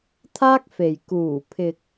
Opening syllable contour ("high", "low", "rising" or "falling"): high